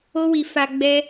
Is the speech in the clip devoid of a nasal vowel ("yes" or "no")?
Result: yes